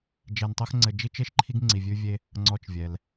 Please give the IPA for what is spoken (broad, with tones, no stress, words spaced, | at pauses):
d͡ʒɛ˧ntˤɤ˥x ŋ͡ǀɘ˧d͡ʒi˥t͡ʃe˥ʃǃʰi˥ɡ ŋ͡ǀi˧vʲʉ˥vʲe˥ | ŋ͡ǀɔ˧t͡ʃvʲɛ˩l